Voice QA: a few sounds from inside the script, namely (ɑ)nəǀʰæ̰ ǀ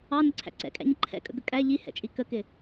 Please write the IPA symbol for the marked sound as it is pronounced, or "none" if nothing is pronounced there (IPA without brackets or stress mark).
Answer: ɑ